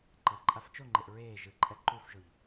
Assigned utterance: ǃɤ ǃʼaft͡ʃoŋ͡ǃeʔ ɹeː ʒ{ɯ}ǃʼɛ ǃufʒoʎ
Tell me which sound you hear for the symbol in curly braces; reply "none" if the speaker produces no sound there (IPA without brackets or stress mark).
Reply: ɯ